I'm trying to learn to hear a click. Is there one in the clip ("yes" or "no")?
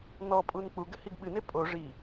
no